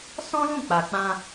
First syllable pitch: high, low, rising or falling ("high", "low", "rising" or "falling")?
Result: high